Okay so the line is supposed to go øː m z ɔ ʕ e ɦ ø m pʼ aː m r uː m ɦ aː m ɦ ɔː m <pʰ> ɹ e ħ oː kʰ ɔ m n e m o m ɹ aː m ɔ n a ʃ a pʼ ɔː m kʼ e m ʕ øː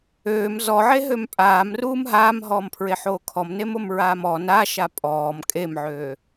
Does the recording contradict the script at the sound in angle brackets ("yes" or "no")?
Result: no